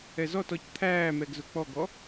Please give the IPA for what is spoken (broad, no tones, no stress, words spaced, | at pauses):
ɛzɔtɔc t̪ʰæːmɛɡ zʊk͡pɔɡɔ